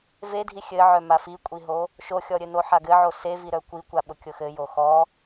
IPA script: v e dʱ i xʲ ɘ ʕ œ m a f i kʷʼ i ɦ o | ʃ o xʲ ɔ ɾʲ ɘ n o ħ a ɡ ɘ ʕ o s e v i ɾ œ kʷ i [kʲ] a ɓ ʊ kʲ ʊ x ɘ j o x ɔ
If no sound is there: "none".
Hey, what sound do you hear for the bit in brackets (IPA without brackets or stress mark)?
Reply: kʷ